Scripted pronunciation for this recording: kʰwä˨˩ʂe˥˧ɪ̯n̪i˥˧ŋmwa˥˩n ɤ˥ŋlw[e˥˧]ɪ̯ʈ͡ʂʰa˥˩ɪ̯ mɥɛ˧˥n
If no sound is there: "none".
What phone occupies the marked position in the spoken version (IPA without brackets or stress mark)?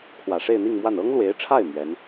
e˧˥